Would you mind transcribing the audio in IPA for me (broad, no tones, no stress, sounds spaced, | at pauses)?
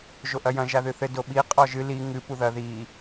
ʒ o ʔ ɐ j ɐ̃ ʒ a ð ɨ θ ɘ d o ɓ i qʼ ɔ ʒ ɨ l i ŋ ɨ p u ð ɐ ð i